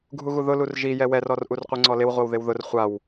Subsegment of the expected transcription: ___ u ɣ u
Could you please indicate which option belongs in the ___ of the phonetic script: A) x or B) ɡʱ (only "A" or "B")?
B